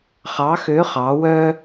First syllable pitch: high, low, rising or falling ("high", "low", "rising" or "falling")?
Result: rising